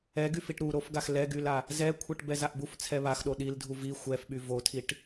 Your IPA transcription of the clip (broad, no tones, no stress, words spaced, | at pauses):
ɛɡy fiʈɾuɾofɡax lɛɡyla | zɛkʷʰɛʈ bɛzaʔbuf t͡sʰɛβaxɗo ɗildʱu vi xʷɛfɓy votʰiʈ